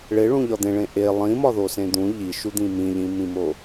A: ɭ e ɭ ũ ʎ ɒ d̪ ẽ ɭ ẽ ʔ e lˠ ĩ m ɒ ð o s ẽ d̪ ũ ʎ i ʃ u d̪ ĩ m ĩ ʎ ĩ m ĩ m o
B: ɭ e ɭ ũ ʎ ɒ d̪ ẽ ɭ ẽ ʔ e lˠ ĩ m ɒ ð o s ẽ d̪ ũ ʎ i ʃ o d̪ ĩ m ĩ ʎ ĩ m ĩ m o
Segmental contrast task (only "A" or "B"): A